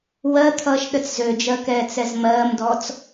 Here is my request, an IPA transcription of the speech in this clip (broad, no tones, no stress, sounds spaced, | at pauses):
w ɜ t̪ʰ ʌː ʃ ɗ ə t͡s z ø d͡ʒ ɜ k ɛː t͡s ɛ z m ɜː m d ɔː t͡s